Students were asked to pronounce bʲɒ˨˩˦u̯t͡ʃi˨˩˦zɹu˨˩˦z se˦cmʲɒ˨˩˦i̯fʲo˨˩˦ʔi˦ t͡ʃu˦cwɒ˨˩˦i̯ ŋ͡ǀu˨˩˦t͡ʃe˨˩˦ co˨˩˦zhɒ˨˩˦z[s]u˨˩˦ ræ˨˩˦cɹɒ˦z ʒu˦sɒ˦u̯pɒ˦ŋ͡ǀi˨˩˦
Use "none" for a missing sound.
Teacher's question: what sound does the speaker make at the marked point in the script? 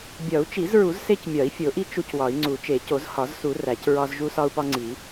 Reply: s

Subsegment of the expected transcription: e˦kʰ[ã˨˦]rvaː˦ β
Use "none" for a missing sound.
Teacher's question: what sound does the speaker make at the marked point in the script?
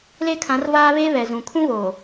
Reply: ã˨˦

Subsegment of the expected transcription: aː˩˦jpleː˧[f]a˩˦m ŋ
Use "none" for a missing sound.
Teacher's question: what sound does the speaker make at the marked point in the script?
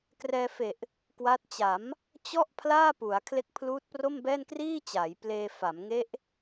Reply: f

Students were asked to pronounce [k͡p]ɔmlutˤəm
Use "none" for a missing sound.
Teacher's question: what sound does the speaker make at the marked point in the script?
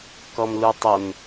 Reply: k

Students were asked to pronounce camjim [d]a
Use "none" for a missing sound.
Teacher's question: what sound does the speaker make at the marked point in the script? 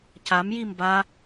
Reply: b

